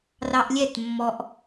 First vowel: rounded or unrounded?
unrounded